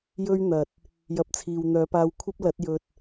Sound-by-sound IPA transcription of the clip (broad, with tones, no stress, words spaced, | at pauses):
jɵ˥ɥn̪ɐ˨t̚ | jɐ˧p̚t͡sʰiː˨wn̪œː˨˥paː˧w kʷʰɐ˥p̚lɐ˨˥t̚ jɵ˨t̚